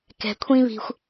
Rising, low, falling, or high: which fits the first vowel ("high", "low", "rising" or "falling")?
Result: low